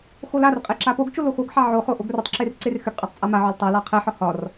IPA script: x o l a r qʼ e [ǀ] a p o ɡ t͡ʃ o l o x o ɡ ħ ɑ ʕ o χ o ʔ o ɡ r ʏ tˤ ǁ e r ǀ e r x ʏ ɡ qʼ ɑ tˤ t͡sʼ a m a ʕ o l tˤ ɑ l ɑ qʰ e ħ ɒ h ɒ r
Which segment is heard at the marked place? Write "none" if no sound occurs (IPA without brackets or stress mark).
ǁ